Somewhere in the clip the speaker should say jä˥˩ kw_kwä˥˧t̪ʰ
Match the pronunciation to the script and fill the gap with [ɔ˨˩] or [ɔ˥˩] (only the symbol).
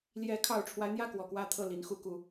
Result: ɔ˨˩